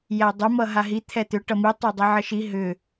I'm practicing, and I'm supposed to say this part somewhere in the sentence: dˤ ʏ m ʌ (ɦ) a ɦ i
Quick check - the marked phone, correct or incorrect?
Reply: correct